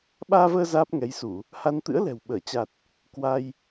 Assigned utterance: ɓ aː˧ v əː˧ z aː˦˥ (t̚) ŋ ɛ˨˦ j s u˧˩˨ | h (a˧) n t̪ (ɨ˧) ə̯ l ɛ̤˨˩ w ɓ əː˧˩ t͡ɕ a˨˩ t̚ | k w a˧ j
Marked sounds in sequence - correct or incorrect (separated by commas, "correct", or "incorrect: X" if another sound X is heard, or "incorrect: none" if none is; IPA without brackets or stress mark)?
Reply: incorrect: p̚, correct, incorrect: ɨ̰˧˥